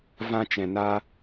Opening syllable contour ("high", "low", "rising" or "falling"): high